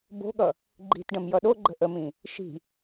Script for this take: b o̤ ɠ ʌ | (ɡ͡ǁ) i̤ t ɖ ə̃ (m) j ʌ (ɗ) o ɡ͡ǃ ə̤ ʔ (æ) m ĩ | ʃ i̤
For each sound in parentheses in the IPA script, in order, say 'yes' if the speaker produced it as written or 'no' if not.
no, yes, yes, no

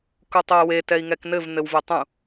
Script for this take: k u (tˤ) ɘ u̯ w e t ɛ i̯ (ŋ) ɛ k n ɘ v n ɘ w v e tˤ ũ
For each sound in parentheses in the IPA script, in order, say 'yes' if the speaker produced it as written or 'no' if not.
yes, yes

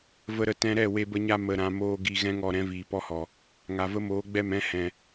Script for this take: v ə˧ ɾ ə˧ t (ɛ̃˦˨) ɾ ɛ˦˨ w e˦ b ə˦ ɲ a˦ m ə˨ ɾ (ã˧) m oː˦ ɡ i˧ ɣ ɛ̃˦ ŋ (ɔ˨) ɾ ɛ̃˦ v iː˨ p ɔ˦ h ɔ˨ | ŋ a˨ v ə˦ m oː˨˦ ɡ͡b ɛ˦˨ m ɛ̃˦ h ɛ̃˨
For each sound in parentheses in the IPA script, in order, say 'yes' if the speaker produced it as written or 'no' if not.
no, yes, yes

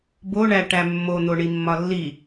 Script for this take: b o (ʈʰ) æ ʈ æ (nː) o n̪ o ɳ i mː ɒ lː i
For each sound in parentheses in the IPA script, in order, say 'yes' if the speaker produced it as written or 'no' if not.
no, no

